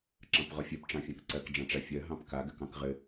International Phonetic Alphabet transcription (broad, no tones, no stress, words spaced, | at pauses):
ǁɑ̃pʁɔfʲɜp ʈ͡ʂɑ̃fʲãkǀɜk ɖ͡ʐɑ̃ʈ͡ʂafʲɜ ɦɑ̃pka ɡɘkɑ̃kʁɘ